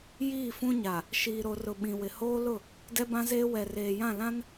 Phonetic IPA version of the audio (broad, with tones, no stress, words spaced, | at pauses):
jiː˦˨fũ˦ɲa˨ | ʃiː˨ɾo˨rʊ˨ ɓĩ˨wɪ˨hoː˦lʊ˦˨ | dɛ˦bã˦zeː˦ wɛ˨reː˨jã˦˨lã˦n